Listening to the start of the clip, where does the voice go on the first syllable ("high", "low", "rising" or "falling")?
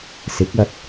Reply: rising